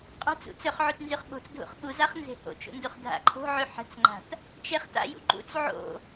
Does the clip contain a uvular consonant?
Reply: yes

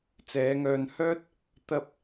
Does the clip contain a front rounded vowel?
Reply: yes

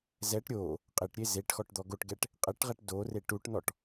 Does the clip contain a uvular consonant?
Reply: yes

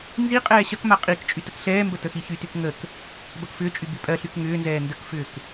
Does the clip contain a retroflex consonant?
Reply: no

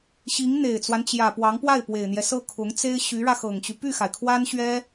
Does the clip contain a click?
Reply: no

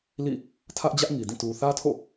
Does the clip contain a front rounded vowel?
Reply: no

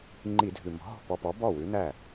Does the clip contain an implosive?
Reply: no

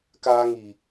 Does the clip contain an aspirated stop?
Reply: no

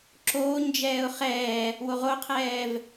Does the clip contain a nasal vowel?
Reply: no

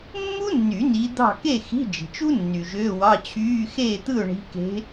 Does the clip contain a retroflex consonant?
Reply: yes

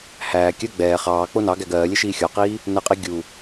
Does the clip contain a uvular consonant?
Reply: yes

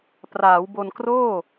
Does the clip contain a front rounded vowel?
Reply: no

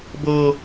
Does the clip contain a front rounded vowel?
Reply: no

